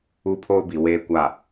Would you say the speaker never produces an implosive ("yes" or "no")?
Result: yes